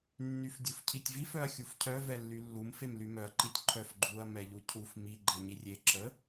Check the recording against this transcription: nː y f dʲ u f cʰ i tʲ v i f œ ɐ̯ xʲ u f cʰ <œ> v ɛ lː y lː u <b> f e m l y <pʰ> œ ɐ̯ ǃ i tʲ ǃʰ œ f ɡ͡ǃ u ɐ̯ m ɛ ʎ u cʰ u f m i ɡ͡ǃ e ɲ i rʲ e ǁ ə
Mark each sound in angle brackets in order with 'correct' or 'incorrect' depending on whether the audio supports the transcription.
correct, incorrect: m, incorrect: m

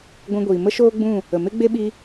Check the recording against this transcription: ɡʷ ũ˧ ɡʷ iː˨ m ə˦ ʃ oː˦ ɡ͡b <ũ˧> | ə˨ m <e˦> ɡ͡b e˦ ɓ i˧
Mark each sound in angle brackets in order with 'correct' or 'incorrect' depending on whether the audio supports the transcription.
incorrect: ũ˦˨, correct

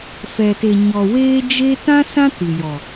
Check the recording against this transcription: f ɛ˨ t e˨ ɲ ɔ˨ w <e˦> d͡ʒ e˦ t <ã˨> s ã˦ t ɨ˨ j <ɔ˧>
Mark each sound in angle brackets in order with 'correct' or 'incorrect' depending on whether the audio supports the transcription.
incorrect: eː˦, incorrect: ã˦, incorrect: ɔ˨

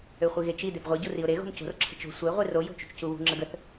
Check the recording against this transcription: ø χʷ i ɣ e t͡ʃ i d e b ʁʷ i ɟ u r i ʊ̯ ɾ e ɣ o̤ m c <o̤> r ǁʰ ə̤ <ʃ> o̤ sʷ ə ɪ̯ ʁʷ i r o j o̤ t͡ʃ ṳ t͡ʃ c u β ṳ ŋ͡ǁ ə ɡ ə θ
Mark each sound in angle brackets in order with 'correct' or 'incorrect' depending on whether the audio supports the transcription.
correct, incorrect: t͡ʃ

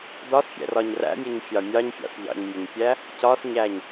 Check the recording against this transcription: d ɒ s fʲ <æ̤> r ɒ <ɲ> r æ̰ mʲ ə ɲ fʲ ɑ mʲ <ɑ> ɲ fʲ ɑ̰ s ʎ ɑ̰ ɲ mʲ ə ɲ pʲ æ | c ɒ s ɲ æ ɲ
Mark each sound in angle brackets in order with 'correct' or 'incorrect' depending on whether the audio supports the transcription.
incorrect: æ̰, correct, correct

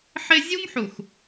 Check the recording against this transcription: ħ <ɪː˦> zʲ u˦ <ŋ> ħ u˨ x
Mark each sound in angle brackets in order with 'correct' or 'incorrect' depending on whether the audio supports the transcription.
incorrect: ɪ˦, correct

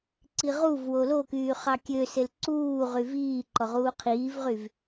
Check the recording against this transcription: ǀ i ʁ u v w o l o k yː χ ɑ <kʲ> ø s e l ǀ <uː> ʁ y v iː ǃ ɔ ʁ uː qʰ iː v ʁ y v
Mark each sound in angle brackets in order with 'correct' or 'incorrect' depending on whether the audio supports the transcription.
correct, correct

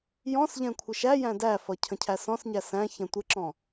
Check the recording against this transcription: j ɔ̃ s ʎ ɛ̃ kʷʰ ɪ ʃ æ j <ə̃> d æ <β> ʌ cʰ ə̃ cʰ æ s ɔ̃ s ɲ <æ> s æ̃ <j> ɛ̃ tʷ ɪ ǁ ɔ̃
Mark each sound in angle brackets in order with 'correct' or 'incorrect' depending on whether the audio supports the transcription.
incorrect: æ̃, incorrect: f, correct, incorrect: ç

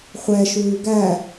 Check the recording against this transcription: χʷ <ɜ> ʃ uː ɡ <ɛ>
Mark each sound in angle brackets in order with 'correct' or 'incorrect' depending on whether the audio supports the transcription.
incorrect: ɛ, incorrect: æ

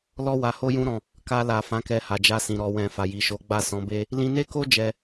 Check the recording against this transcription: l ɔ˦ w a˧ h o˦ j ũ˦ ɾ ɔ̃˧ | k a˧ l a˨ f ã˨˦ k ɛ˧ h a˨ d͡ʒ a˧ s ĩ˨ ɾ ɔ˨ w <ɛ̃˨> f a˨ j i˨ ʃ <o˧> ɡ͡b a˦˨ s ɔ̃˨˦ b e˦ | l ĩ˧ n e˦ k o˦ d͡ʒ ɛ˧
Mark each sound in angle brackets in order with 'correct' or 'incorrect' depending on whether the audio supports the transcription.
correct, incorrect: o˨˦

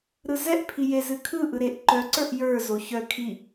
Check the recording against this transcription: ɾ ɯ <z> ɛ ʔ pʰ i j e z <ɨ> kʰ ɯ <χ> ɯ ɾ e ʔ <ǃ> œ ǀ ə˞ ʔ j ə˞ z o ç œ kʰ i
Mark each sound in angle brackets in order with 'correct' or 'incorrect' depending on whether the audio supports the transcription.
correct, correct, incorrect: ʔ, correct

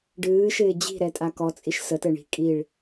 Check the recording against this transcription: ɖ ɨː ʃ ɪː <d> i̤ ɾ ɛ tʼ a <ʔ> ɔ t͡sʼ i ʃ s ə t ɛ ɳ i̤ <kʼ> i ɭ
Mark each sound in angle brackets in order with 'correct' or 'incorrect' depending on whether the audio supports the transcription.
incorrect: d͡ʑ, incorrect: k, correct

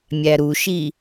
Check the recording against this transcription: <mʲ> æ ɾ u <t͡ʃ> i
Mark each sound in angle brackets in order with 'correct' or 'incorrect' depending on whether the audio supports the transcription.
correct, incorrect: ʃ

